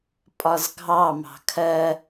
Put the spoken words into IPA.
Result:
pʼɒzɡʱɑ mɑ̤kʰɜ

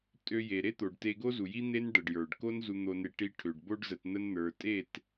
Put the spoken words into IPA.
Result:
tʼø˧je˨ ɾe˦t̪o˨ɖte˧ ɡo˦zu˨ji˦ n̪e˦nɖə˨ɖjə˞˨ɖko˦n zu˧n̪o˧ne˧ ʈi˧ʈʰø˨ɖ bo˦ɖzə˧t n̪ə˧nn̪ə˞˨tʼe˦˨t

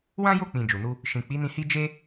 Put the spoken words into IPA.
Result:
wã˦jo˦˨k͡pĩ˨ d͡ʒu˨nu˧ | ʃĩ˨k͡pi˨˦nĩ˧ hi˦ d͡ʒe˦

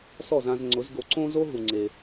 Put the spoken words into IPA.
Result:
sɔ˥˩zã˧zŋ͡ǀʊ˩˥z ɡo˩˥ǀõ˥zo˥ɦu˩ ŋ͡ǀe˩

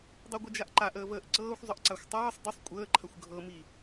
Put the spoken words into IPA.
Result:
dˤoɡʷəd͡ʒaʔǃaʔ əːvəːʔǀɤːxʷ zˤəʔǀaxʷtˤɤːsˤ dəsˤ kʷʼəːǃʰɐxʷ ɡʱɤmi

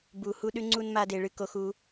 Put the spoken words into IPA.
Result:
bu˧hu˦ɗʉ˦ ŋ͡ǀu˦nma˦de˧ ɭɨ˧ko˧xu˧

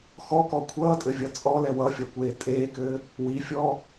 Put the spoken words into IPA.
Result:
xɔ kɔkʷʰʌːtʼɘ vʲʌt͡sʼɔlɛ wʌfʲʌ kʷeːtʼeːkɘː | wifʲɔː

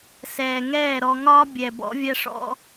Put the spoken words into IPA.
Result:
sɛː˨ŋɛː˦˨ɾɔ˧ŋɒː˦ bʲɛ˨ bɔ̰˦vʲæ˦ʂɔ̰˦

